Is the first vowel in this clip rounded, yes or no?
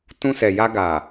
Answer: yes